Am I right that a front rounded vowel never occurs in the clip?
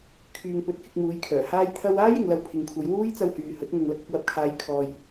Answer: no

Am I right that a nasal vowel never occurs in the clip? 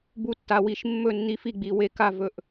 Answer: yes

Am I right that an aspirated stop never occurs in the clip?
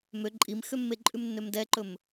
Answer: yes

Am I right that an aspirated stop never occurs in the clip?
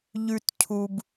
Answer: no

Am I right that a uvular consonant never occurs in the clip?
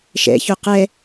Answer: no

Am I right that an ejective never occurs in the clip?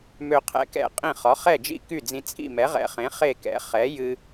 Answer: no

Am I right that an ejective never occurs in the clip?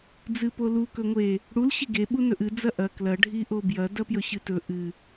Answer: yes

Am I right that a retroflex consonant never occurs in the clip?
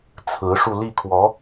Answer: no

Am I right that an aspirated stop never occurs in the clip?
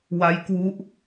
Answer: yes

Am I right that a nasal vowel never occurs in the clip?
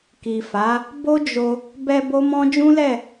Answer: no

